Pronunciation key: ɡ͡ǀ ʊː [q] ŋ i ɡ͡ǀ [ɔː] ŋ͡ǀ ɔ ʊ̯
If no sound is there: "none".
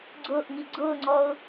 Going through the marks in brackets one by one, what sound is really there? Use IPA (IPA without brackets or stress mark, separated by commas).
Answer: ʔ, ʊː